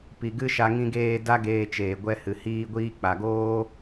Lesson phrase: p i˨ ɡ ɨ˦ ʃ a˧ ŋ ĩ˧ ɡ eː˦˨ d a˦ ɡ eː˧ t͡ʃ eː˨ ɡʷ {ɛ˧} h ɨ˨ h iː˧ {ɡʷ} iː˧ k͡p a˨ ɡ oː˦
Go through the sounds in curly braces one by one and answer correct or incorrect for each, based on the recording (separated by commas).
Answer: correct, correct